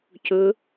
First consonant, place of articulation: palatal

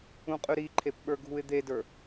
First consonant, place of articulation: uvular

